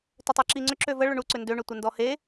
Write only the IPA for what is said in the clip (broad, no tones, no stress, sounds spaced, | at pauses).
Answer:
t ʏ tˤ e ǁ i ŋ͡ǀ ʏ ǁ ø v ə ɭ ʏ ɳ u ǀ ʏ n d ø ɳ ʏ tʷ ə n d ɔ h e